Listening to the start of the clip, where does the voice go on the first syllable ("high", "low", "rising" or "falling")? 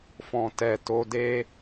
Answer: low